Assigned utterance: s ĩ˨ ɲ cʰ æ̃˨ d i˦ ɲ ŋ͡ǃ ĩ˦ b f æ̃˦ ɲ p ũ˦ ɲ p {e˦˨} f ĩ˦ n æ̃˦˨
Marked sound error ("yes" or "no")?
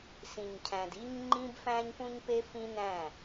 yes